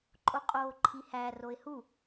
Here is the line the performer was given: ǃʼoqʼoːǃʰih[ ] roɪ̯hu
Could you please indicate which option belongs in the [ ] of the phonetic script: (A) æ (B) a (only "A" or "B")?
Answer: A